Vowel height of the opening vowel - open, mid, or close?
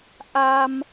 open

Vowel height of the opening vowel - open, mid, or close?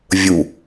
close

